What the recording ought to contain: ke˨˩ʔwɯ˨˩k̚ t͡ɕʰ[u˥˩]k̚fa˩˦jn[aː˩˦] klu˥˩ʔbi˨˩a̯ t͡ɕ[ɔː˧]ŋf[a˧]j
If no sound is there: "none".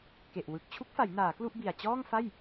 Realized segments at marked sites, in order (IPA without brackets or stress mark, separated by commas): u˦˥, aː˩˦, ɔː˥˩, a˥˩